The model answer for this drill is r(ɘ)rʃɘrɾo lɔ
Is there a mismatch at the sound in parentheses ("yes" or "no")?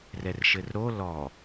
yes